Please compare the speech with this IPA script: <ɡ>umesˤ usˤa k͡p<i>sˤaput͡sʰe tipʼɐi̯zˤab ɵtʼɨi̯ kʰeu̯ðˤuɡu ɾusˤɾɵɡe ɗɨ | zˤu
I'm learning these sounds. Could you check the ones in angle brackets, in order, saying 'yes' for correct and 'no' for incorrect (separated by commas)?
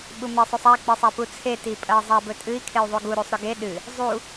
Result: no, yes